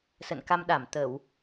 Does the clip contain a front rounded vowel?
no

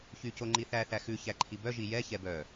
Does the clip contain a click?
yes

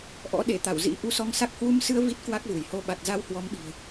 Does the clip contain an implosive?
yes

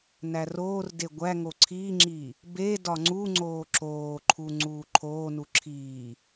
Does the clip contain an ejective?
no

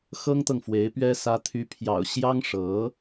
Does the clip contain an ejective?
no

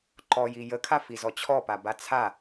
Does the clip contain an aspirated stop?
yes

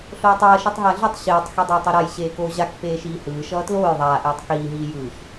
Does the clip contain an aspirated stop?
no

